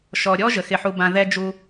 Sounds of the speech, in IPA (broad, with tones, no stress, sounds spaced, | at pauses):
ʃ ɔ˨ ɾʲ ɔ˦ ʒ ə˨ x ɪ˦ ħ u˦ b ã˦ ð ɛ˦ d͡ʒ u˦